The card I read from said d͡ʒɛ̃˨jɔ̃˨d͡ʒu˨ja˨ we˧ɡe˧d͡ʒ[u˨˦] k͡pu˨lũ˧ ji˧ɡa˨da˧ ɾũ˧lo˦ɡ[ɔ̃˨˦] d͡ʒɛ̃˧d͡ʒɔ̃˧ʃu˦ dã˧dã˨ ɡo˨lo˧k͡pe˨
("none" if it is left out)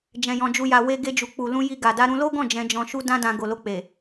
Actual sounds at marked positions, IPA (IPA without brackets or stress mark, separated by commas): u˨, ɔ̃˦˨